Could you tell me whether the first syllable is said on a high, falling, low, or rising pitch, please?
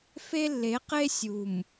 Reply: high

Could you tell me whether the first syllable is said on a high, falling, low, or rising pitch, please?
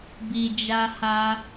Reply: low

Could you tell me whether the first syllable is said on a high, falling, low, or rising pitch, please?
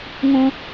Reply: high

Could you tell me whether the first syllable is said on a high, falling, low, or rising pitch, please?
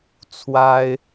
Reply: high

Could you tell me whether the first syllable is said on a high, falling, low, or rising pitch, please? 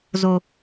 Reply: high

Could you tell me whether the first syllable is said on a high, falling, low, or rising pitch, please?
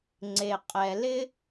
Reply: low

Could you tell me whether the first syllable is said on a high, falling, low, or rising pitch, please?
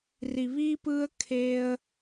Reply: low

